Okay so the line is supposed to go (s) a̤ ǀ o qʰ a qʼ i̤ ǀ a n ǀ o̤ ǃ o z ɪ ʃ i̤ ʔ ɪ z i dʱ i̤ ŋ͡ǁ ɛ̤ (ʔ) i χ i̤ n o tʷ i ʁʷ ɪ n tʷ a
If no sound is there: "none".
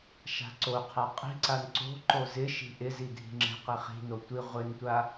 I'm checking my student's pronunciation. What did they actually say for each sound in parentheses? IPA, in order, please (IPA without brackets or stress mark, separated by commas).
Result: ʃ, q